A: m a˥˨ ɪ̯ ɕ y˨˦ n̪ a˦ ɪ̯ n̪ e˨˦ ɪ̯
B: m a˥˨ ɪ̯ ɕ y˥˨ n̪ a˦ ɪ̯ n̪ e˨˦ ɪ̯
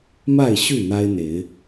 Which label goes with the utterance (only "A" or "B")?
B